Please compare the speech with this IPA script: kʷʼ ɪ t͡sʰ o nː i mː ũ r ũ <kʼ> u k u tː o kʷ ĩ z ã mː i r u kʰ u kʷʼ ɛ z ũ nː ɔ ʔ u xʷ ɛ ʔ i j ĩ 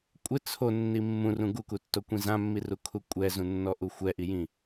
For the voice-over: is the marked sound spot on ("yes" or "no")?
no